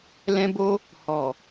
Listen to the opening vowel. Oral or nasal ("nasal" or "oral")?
nasal